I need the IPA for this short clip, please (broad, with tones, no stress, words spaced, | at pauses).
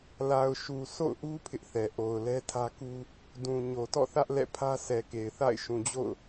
la˨ʊ̯ʃu˨ so̰˦˨ʊ̯ʔu˦ pʰɪ˦ʔθɛ˨ ʔo˨ʊ̯lɛ˦tʰä˦ku˦ | dũ˨ɲo˨ tɔ̰˦˨θä˦ʔlɛ̰˦˨pʰä˦ sɛ˨ke˨ɪ̯θa̰˦˨ɪ̯ ʃũ˨d͡ʑo̰˦˨ʊ̯